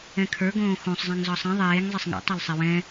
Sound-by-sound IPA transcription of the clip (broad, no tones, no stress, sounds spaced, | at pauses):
ɛ̃ kʰ ə˞ ɡ õː x õ sˤ zˤ ɛ̃ ŋ z ɒ sˤ ĩ ðˤ eː ŋ zˤ e sˤ ŋ ɛ̰ tˤ e l sˤ ɛ w ɛ̃